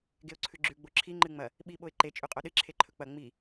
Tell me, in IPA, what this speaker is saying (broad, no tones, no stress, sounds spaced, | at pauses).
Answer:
ɡ e ʊ̯ ǀʰ ʉ ɡ͡ǁ ʉ ɡ͡b o ǁʰ i ŋ͡ǃ ɨ ŋ͡m ɐ | ɓ i ɓ o ɪ̯ ǃ e t͡ʃʼ ʉ qʼ o ɗ ɨ ǁʰ e ǃʰ ɵ k͡p ɐ ŋ͡m i